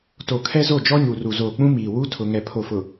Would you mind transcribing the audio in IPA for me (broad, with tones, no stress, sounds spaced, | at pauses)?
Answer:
t o˨ kʰ ɛ˦ z o˦˨ d͡ʒ ɔ˦ ɲ u˨ r u˨ z oː˨ k͡p ũ˦ m iː˨ w u˦ tʰ ʊ˨ ŋ ɛ˨ pʰ o˨ f ʊ˨